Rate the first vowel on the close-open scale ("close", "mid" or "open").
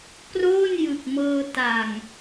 mid